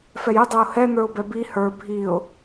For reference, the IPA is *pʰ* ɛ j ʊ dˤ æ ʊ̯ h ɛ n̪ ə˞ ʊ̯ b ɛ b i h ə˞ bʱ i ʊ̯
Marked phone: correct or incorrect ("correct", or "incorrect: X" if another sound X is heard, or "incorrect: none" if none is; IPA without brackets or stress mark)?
incorrect: f